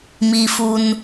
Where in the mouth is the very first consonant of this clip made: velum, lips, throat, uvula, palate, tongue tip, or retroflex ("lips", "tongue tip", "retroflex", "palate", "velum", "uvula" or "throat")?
lips